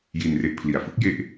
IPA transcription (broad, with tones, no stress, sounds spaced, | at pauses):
j i˧ n r e˦˥ ʔ pʰ l i˨˩ a̯ f ɯ˦˥ k̚ j e˦˥ ʔ